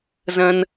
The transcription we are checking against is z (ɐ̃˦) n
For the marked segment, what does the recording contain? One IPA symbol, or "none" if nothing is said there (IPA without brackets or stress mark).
ɐ̃˦